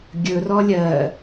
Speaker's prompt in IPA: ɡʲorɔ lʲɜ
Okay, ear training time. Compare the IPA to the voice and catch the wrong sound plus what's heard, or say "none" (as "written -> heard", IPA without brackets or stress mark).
o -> ɵ